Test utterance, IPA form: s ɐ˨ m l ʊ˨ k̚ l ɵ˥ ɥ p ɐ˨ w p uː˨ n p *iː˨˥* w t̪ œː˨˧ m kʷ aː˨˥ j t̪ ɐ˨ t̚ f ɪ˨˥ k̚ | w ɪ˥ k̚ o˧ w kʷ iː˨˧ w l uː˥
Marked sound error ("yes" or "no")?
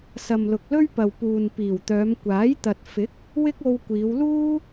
yes